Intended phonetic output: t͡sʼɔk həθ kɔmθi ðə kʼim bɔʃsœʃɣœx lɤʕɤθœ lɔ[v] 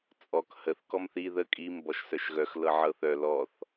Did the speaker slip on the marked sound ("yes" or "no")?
yes